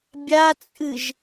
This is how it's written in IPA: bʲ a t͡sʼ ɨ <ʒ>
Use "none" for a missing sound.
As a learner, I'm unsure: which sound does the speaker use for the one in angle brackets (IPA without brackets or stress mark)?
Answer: ʒ